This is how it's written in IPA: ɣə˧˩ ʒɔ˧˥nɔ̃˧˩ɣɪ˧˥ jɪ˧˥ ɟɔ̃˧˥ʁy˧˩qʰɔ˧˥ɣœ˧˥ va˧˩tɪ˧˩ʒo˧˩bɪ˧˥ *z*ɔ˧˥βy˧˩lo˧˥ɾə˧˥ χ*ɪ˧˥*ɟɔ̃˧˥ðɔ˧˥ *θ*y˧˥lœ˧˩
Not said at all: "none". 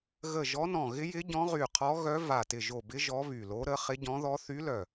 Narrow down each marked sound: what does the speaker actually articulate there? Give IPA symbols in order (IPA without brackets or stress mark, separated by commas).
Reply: ʒ, ɪ˧˥, θ